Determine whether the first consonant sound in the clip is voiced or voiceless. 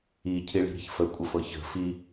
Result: voiceless